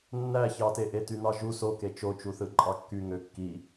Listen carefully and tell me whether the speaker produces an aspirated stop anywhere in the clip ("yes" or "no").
no